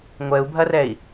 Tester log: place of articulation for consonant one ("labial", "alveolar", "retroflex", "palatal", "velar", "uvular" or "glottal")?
velar